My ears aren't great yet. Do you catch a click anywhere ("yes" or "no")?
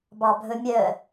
no